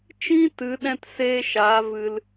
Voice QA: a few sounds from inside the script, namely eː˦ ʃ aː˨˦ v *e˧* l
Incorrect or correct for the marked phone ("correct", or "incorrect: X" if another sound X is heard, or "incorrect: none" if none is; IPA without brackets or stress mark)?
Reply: incorrect: ɨ˧